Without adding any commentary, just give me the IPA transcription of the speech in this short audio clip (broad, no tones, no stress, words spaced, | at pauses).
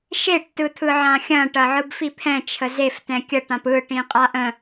ʃeʈtɯ t̪ʰɯʕãxʲɐ̃ ʈɐʕɯbfipʰɛ̃ t͡ʃʰəzeftɛ̃ kʲəʈãp ɯʈĩ qʼaʔə̃